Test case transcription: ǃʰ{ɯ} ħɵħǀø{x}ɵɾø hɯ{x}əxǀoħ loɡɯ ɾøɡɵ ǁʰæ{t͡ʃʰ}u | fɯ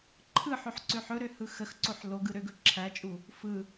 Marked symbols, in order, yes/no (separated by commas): yes, no, yes, no